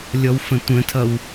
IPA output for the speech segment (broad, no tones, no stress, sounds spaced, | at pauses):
lʲ ɔ w f ə̃ tʷ ə̃ tʰ ʌ w